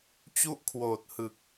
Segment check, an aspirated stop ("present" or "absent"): present